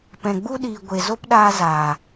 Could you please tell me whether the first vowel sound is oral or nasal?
nasal